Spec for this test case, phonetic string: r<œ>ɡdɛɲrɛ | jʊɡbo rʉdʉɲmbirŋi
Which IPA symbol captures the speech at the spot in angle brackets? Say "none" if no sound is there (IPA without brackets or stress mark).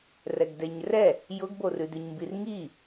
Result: ɛ